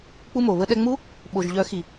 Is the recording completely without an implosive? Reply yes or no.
no